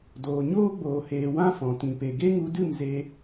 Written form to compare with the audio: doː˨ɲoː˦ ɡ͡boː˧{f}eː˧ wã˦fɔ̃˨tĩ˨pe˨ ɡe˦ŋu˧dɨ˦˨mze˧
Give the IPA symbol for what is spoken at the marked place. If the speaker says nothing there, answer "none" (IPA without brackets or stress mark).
h